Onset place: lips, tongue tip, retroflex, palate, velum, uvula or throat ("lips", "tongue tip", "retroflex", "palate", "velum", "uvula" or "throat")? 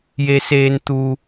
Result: palate